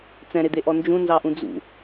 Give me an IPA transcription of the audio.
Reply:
t͡sɛ̃ɾed̪eʔɔ nd͡ʒũnzɑʔũ d͡zṵ

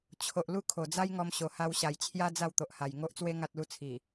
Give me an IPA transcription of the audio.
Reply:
t͡ɕʰo˨ʔ lu˦kʰo˨˩d͡za˦jŋɔ˧m ɕo˨˩ha˧wɕa˨˩jt͡ɕʰja˦ d͡za˥˧wt̪o˨ʔha˨˩j ŋo˦ʔt͡swe˦ ŋa˦t̚lu˦ t͡sʰi˨˩

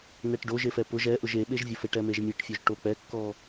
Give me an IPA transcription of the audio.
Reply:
nɛʈɖoʒ efɛpʊʒ ɛʔʊʒ eɓeʒvʲʊfeʈ ɛmeʒmʲeʈfʲoʒ ʈok͡pɛkːɔ

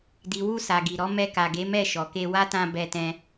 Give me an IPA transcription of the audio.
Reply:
di˨wu˧ sa˨ɡi˨ɾɔ˨˦ mɛ˧ ka˨ɡe˨˦mɛ˦˨ ʃɔ˨ke˧wa˦tã˧ bɛ˧tɛ̃˧

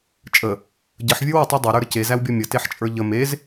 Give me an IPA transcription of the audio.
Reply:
t͡ʃʼə | ɟəħvʲə˞w ətˤɛ dˤeɾə˞ɾə cezæwbʲɔ mʲəteħt͡ʃʼə˞ ʎə mez

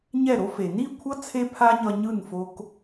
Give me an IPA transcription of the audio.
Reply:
ɲɛ˦˨ɾo˦fe˨ ni˦˨kʷʰʌ˦ t͡sʰe˦pʰa˦ɲʌ˧ ɲɯ˦˨nfo˦k

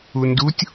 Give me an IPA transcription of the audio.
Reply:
undutʲ

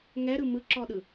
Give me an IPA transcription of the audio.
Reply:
ŋɛɾɯ mɯǁɔɗɯ

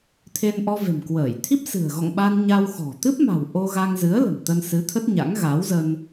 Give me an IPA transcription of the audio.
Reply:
t̪ʰe˧nʔɔ˧ve̤˨˩mkwəː˧˩j t̪ʰi˦˥p̚sɨ̤˨˩ə̯ɣɔ̰˧˨ŋɓa˧n ɲa˧wxɔ̤˨˩ t̪ɨ˦˥p̚ma̤˨˩w ʔo˧ɣa˧ŋzɨ˨˦ə̯ lə̤˨˩mt̪ə˧nsɨ˨˦ t̪ʰə˦˥t̚ɲa̰˧˥ŋ ɣa˨˦wzə˧n

